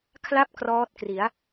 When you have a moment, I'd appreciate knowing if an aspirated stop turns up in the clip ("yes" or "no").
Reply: yes